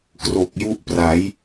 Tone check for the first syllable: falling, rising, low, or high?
low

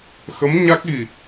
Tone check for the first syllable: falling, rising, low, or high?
rising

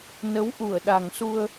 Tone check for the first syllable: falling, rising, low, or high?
rising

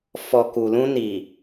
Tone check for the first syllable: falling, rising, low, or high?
low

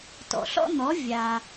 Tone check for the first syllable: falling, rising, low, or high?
low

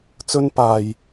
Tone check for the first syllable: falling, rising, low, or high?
high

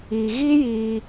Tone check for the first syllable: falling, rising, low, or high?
low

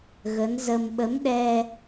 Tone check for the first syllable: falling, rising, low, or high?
rising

